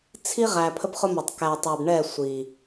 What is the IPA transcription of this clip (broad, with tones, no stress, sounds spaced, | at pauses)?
t͡sʰ i˦ ʁ æ˨ pʰ ə˦ p χ ʊ˦ m ɑ˨ tˤ k æ˨ tˤ æ˨ b ɳ ɛ˦˨ sʷ i˨